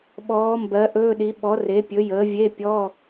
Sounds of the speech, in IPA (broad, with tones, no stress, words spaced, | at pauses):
ɓɔː˨˥mbɜ˨˥ ʔɵː˧˥˧ɗi˨˥ ɓɔ˨˥re˨˥pʲɵ˨˥jəː˨˥ vʲe˧˥˧pʲɔ˧˥˧